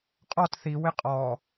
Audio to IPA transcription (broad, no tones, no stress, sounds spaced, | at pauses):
qʼ ɔ t θ i w ɪ qʼ ɔ